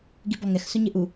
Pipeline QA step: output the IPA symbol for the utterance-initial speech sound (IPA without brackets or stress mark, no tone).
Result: ɡ